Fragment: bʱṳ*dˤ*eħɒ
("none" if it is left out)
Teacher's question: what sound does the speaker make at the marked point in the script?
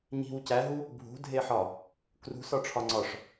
dʱ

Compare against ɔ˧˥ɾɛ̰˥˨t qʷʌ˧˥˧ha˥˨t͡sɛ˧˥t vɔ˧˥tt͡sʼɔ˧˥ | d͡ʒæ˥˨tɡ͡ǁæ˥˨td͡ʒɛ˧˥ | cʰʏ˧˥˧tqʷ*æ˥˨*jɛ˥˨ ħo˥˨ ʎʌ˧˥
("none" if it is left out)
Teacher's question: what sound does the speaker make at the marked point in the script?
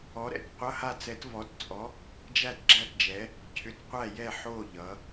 æ˥˨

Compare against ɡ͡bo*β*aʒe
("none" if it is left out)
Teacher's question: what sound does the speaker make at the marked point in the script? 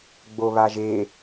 β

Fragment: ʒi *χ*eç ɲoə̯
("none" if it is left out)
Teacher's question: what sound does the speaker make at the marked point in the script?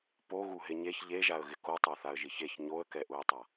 ç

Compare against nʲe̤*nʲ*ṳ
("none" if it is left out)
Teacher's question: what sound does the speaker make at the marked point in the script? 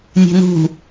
n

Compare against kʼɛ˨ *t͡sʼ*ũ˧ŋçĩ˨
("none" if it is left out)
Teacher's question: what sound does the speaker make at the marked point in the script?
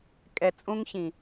t͡sʼ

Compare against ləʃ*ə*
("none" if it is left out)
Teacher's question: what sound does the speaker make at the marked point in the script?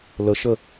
ə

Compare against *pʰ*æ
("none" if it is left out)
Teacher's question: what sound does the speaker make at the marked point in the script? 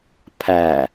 pʰ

